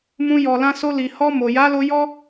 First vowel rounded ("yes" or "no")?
yes